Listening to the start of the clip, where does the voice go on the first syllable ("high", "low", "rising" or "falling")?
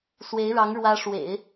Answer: rising